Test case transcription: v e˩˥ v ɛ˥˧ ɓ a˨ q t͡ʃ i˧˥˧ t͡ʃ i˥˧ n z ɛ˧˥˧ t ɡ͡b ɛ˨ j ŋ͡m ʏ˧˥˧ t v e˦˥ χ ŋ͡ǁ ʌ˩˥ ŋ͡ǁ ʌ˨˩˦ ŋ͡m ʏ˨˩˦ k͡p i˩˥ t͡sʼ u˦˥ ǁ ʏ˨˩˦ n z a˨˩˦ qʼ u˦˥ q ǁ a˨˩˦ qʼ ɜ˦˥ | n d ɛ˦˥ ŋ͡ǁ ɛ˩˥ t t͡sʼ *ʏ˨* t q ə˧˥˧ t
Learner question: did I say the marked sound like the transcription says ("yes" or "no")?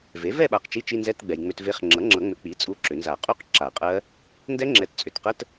yes